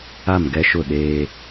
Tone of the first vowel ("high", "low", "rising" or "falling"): falling